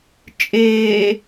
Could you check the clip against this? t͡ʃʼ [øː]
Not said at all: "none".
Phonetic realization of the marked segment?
eː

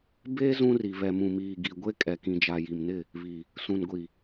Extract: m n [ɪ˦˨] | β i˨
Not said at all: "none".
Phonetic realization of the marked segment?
ɪ˦˨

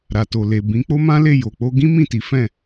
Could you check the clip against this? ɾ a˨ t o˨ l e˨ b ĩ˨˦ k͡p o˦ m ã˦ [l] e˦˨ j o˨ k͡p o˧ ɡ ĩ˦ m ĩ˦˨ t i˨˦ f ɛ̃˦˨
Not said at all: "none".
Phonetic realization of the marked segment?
l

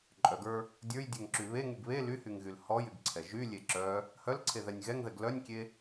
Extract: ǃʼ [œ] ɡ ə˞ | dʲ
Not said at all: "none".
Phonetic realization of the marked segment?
œ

